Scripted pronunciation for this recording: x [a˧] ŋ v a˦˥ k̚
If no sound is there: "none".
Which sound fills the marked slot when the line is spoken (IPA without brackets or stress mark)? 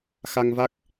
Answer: a˧